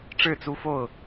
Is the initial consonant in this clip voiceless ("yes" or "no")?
yes